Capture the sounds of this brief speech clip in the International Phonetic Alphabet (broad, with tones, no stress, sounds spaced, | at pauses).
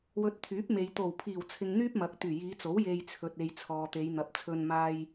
w ɵ˨ t̚ t̪ʰ yː˨˥ p̚ m e˨ j t̪ o˨˩ w pʰ iː˨˩ w t͡sʰ ɪ˨ ŋ n̪ yː˥ p̚ m ɐ˨ k̚ t̪ yː˨˩ j iː˨˧ t͡s o˨˥ w j e˧ j t͡sʰ ɵ˨ t̚ e˨ j t͡sʰ ɔː˨ t̪ e˨˧ j n̪ ɐ˨ p̚ t͡sʰ ɵ˧ n m aː˧ j